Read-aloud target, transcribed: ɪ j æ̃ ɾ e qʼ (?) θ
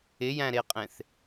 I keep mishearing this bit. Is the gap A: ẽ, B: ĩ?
A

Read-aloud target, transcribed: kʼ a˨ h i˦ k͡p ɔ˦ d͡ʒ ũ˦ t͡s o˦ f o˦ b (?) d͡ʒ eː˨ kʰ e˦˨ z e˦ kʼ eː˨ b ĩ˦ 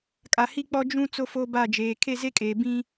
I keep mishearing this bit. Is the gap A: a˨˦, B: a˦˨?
B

